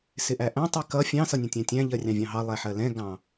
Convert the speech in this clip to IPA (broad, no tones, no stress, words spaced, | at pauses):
sɪʔæʔæ̃ tˤikʌ fʲɑ̃ sʌnʲɛ̃tʲæ̃tʲæ̃ ʎɜrʲɑ̃vʲɑ̃ɦɑ lˠɛħɜlɛ̃ ɡɑ̃